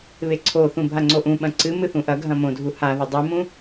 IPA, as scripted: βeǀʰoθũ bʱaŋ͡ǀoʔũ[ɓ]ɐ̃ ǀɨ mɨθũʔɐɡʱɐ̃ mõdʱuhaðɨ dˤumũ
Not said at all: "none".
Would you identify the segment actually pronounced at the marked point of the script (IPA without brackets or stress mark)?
ɓ